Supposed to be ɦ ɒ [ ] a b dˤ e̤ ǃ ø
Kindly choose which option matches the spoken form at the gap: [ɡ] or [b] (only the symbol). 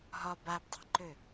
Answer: b